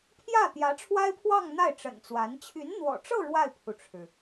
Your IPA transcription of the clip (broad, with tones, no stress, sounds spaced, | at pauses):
pʰ j ä˥˩ t̪ j ä˧˥ ʈ͡ʂʰ w a˥ ɪ̯ pʰ w ɑ˥˧ ŋ n̪ a˥˩ ɪ̯ ʈ͡ʂ ə̰˨˩ n t͡s w a˧˥ n t͡ɕʰ y˧˥ n n̪ w ɔ̰˨˩ ʈ͡ʂ ɤ˥˧ ɻ w a˥˩ ɪ̯ pʰ u˩ ʈ͡ʂʰ ɻ̩˩